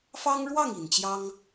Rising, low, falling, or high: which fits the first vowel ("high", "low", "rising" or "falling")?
high